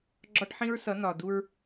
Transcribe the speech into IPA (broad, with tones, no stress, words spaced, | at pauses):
ɡ͡ǁɒ˦ʈħĩ˦ɹsʌ˨˦ nɒ˨du˦ɹ